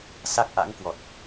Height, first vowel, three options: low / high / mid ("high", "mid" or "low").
low